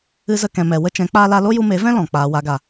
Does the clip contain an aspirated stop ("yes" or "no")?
no